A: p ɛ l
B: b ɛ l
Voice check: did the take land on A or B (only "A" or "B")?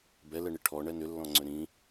B